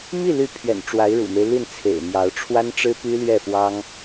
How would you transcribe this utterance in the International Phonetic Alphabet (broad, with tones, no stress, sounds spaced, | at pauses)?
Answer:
m i˥˩ l y˧˥ pʰ ɥ ɛ̰˨˩ n ʈ͡ʂ w a˧˥ ɪ̯ ɻ ṵ˨˩ m e˦ ɪ̯ l i˥˩ n t͡sʰ ḛ˨˩ ɪ̯ m j ɑ˧˥ ʊ̯ ʈ͡ʂʰ w a˥ n ʈ͡ʂ ɻ̩˥ p y˥ l ɥ ɛ˥˩ f w ɑ˥ ŋ